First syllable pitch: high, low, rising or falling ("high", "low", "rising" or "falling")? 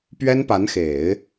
high